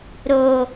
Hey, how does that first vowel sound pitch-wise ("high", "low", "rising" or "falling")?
high